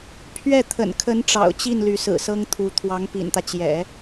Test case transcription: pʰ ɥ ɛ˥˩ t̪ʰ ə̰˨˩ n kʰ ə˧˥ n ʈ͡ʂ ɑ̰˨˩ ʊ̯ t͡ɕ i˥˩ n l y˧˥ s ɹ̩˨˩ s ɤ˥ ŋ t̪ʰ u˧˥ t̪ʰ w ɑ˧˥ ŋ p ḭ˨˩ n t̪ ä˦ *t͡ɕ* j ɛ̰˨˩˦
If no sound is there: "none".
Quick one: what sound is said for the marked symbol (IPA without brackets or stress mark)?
t͡ɕ